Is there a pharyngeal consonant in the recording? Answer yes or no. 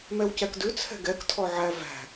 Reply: yes